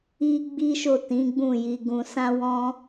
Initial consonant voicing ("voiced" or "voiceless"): voiced